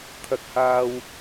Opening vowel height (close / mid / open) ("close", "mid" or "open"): open